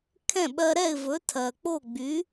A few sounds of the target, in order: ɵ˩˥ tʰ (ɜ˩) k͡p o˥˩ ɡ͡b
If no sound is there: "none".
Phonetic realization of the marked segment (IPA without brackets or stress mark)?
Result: ɜ˩